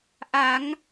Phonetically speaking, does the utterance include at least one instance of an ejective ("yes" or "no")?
no